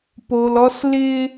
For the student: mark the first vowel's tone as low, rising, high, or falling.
low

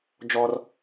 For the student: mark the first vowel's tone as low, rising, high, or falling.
high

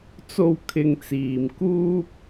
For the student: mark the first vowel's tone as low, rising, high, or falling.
low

